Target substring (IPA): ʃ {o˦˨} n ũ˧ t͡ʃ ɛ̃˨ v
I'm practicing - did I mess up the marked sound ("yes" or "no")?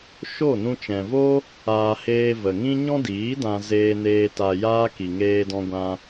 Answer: no